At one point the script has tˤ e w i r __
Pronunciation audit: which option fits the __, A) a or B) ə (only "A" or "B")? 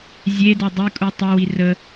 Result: B